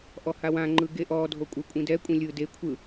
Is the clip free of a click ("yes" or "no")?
no